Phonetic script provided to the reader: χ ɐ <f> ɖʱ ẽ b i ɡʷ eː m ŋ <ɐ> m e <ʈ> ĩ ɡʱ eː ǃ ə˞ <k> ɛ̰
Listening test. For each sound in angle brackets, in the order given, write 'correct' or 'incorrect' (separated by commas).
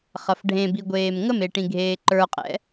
correct, incorrect, correct, incorrect